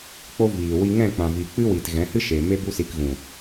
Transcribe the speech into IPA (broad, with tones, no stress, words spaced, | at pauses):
k͡po˦ viː˨ wi˧ ŋɛ̃˦˨ k͡pã˨vi˨ k͡pɨ˦wi˨t ɣɛ̃˨˦hɨ˦ ʃe˨me˦ bu˦si˧k ɣũ˨